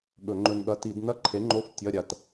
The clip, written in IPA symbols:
ɠ ɵ˧˩˧ ŋ͡ǃ ɵ˧ n ɠ ɐ˧˥˧ t i˧˩˧ d n ɐ˧˥˧ ǃʰ e˨˥ ŋ͡ǃ o˧˥˧ f tʲ ɐ˧˥˧ ɾʲ a˧ t

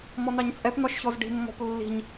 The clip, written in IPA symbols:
m ɔ n̪ ɑ ɲ t͡sʼ ɛ p n̪ ɒ ʃ ç ɔ z ɖ i̤ mː ɔ̤ p lː i̤ ɲ

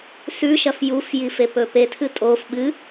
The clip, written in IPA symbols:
s ʉ ʃ ɐ f j u f j i f e p ɵ p e tʰ ɨ tʼ o f ɓ ɨ

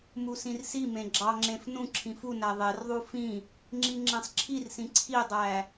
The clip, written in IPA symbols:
m u s ĩ r s i m ẽ ɡ͡ǁ ɑ ŋ͡ǁ ẽ f n ũ ǁʰ ĩ f u n æ ðˤ e r ðˤ u f ĩ | ŋ͡ǁ i ŋ͡ǁ ẽ sˤ ǁʰ i r s ĩ ǀʰ i dˤ æ

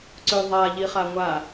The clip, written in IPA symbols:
ǀ ø ðˤ a ʎ i χ a ŋʷ a

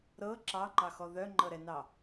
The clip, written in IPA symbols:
ɾ ɤ ǁ ɑ ŋ͡ǃ ɑ x ɔ ð œ ŋ͡ǃ ɤ ɾ ɛ n ɑ

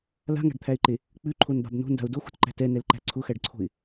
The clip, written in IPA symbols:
l a̤ ŋ a̤ ɖ t̪ʰ æ ɪ̯ ǃ e | k͡p ʉ ǃʰ o n b a̤ b n o̤ n d a̤ ʊ̯ d o x ṳ t ǃ æ̤ t ɛ n ɛ l ǃ æ̤ ǀʰ ʊ x æ ɖ ǀʰ o̤ ɪ̯

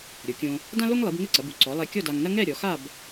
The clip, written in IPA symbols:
ɾʲ o˩˧ kʲ õ˧ | d ã˥ l o˥ ŋ lˠ i˩˧ b ŋ ɘ˥˧ ǀ ɐ˩˧ b u˩˧ ǀ ɔ˩˧ lˠ ɛ˧ kʲ ɔ˥˧ d a˧ ŋ n ɐ˥ ŋ ɛ˥˧ ɾʲ ɔ˩˧ x a˥˧ b

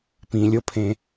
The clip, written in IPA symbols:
p ĩ lʲ o pʰ ẽ

